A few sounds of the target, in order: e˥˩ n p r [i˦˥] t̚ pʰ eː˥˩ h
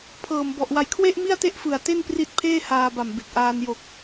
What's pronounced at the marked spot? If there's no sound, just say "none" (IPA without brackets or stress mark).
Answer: i˦˥